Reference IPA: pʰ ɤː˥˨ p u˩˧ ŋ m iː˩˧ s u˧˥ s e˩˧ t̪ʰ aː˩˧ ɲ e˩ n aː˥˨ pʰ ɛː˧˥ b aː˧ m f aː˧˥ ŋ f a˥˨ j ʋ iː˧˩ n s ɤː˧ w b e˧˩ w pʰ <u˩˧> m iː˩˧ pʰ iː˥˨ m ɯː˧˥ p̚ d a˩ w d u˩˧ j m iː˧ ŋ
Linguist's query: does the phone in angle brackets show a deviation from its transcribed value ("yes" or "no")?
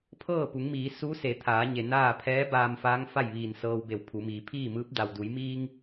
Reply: no